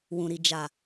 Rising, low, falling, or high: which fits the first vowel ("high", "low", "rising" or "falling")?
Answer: low